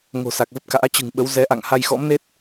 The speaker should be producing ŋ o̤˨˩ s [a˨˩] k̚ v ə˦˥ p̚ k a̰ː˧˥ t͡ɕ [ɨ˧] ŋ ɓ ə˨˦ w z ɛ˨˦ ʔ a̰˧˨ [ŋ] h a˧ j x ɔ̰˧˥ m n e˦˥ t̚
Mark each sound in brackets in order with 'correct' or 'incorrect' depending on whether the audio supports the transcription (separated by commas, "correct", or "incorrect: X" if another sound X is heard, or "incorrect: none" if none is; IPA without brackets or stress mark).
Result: correct, incorrect: ɨ̤˨˩, correct